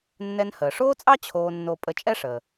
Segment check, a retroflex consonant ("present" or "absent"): present